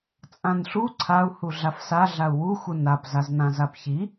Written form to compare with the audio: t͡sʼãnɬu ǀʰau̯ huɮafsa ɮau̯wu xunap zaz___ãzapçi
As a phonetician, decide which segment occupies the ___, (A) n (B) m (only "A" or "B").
A